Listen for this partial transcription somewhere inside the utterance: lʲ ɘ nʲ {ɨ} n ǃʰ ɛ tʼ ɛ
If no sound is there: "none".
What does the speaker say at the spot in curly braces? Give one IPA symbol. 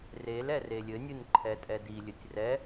ɨ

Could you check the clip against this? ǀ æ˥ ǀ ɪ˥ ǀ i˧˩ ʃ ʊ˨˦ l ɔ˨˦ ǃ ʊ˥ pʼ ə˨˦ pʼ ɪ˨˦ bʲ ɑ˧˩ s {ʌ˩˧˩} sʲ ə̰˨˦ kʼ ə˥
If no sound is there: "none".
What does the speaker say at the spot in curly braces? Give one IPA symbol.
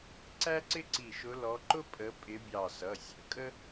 ʌ˩˧˩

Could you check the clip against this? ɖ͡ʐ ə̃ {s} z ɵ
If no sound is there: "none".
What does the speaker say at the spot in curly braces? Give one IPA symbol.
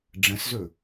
s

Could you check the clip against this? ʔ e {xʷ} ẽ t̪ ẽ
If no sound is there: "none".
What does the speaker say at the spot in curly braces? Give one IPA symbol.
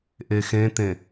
x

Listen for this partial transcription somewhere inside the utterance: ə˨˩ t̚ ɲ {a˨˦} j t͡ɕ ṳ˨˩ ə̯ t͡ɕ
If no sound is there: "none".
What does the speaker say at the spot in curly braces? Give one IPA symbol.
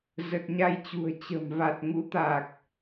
a˧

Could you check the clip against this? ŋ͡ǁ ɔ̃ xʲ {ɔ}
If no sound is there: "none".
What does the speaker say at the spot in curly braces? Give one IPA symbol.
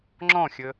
ə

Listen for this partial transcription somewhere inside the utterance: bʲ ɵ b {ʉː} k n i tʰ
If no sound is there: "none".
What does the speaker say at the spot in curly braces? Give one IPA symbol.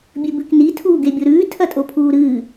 ʉ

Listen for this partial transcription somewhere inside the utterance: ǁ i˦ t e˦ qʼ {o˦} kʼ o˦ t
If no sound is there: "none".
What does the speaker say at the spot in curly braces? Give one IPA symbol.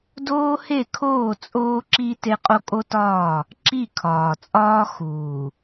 o˦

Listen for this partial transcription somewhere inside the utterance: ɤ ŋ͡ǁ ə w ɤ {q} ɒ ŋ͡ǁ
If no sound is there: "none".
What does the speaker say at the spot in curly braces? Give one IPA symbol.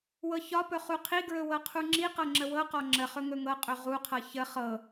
q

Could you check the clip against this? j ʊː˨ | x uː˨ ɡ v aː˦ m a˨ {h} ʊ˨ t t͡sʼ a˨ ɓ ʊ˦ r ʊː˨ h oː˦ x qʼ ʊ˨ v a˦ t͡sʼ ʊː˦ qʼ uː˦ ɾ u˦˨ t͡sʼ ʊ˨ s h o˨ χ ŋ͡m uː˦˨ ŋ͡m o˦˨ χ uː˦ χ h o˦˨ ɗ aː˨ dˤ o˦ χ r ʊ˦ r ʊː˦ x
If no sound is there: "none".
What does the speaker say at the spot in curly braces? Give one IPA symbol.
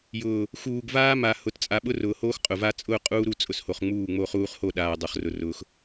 h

